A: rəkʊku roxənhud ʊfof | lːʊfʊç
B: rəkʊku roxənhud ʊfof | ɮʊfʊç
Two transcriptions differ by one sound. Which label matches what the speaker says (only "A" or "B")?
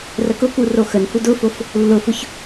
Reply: A